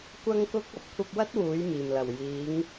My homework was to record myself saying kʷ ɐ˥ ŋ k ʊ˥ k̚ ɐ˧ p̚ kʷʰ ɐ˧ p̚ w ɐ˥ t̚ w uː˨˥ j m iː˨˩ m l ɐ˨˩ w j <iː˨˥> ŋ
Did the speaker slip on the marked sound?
no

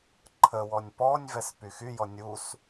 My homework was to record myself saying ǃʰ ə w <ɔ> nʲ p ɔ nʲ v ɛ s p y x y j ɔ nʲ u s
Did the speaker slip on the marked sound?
no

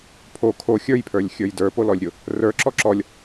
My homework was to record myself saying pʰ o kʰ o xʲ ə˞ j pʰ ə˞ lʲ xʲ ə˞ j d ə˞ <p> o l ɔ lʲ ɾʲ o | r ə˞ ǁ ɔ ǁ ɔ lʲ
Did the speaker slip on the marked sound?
no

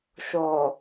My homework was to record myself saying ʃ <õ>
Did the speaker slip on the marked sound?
yes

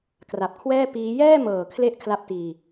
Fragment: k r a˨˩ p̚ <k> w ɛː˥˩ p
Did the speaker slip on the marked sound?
yes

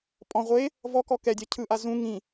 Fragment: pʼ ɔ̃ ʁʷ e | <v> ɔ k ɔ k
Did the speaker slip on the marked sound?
no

